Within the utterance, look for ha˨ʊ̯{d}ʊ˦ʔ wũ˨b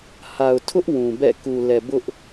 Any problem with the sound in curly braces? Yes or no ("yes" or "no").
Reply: yes